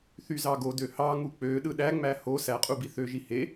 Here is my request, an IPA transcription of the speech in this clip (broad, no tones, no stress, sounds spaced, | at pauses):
θ y z ɑ ɡ o d ø h ɑ ŋ u k͡p ø ɗ ɯ ɗ æ ŋ͡m æ h o s æ qʼ u b i θ ø ʒ i h e